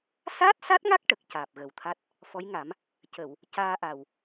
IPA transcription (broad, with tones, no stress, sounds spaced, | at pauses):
s aː˦˥ t̚ s a˦˥ t̚ ŋ a˦˥ k̚ ʈ ə˨˩ k̚ c aː˨˩ p̚ ɣ ə˨˩ w t̪ʰ a˦˥ t̚ | f ɔ˧˥ j ŋ a˨˩˦ m | c ə˨˩˨ w | c aː˧ ʔ a˨˩ w